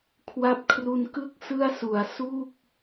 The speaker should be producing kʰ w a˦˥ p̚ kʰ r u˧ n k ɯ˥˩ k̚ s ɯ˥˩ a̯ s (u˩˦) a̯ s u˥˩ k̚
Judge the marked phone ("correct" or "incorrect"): correct